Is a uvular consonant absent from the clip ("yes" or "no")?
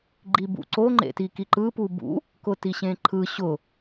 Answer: yes